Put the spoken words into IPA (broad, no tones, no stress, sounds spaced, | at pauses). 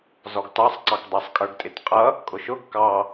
z ɔ ɡ t ɑ sˤ ǀ ɑ k dˤ ɪ sˤ kʼ ə˞ ɡ tʼ ɪ t qʼ ʌ | kʼ ʊ ʃ ʊ ɡ k ɑ